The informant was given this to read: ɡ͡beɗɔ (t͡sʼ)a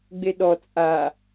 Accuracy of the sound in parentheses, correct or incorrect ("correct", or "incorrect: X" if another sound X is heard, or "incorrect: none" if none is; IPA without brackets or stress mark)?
correct